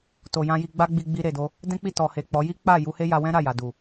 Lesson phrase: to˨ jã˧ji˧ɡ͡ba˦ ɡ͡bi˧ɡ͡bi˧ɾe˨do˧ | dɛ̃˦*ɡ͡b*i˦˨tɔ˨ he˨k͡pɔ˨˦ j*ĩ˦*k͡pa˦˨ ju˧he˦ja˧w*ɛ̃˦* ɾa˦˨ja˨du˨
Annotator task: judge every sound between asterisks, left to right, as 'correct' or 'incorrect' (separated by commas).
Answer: incorrect, incorrect, correct